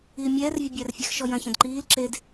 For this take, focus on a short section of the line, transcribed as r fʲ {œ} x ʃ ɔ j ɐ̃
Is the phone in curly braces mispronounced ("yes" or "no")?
yes